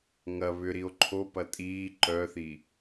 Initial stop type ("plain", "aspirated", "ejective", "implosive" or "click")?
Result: click